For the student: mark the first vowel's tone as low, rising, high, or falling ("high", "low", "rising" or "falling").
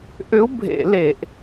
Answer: rising